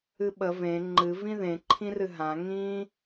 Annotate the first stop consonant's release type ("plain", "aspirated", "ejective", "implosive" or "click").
implosive